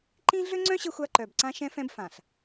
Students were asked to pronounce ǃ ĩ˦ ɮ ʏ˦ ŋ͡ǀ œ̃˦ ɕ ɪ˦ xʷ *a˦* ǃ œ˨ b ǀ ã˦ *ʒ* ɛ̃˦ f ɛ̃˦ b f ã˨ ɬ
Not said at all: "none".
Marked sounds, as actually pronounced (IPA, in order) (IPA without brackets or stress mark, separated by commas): a˦, ʃ